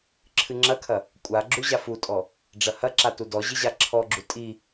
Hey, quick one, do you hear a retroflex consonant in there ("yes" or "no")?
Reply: yes